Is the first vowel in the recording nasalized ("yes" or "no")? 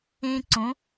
yes